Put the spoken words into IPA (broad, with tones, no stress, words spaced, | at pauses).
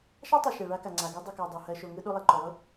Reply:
ʃɑ˦tˤɯ˨ ʃɛ˨ɭa˦ ka˨ŋ͡ǀa˨ɡɯ˦ dˤɯ˨kɜ˨ dˤu˨ hɜ˨ ʃo˨ŋɯ˧ ɗo˧lˠɛ˨ǃo˨lˠɯ˦